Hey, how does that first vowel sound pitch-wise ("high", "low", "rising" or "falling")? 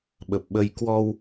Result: low